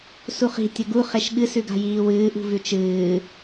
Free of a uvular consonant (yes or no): no